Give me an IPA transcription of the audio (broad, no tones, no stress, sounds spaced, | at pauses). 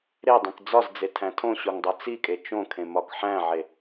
ɾ e dˤ ĩ k d͡z ɒ z d͡z e tʰ æ̃ tʰ õ ɕ o ŋ dˤ o t͡s i kʼ e t͡ʃ õ kʰ ẽ m ɒ k ħ æ̃ ʕ e